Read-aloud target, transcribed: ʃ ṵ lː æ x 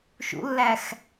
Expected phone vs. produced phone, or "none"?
none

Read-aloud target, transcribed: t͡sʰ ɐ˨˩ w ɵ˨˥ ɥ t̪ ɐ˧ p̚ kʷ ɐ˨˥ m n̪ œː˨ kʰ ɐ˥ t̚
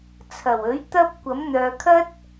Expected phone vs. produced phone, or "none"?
none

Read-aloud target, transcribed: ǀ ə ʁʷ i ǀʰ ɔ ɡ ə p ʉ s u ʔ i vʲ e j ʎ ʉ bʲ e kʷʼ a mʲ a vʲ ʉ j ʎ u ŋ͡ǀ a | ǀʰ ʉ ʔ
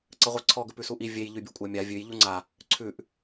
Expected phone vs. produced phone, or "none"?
none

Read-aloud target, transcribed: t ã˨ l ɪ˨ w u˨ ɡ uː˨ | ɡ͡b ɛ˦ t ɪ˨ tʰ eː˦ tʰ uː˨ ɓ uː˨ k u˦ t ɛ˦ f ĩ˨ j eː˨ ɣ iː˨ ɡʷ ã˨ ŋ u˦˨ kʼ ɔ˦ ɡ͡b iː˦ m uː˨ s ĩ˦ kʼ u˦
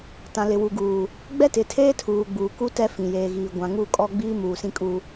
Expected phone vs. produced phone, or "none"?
ɓ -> ɡ͡b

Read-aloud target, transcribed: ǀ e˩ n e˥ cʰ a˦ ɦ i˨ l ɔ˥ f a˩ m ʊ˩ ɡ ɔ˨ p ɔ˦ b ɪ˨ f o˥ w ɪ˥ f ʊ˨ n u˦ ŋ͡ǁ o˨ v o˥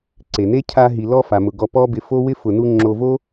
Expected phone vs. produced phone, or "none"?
none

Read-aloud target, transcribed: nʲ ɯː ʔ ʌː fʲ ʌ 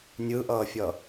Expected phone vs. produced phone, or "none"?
none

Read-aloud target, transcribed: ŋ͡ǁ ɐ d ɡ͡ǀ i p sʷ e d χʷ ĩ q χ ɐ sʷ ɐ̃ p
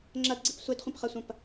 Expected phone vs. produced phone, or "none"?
q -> p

